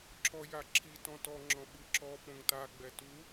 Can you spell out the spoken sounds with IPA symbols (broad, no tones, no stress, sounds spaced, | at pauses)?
ǁ ɔ j a ǁʰ i t ɔ̃ t ɔ ŋ͡ǁ ɔ̃ ɓ ɯ ǁ ɔ p õ ŋ t a ɡ͡b ɛ t u